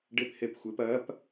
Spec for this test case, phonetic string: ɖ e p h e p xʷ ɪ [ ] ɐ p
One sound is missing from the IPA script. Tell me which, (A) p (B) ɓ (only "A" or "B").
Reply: A